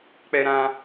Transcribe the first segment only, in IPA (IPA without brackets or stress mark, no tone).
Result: k͡p